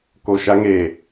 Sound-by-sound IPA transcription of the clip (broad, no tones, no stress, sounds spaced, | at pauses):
k o ʃ a ŋ e